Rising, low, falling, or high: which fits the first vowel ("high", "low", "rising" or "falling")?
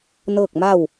falling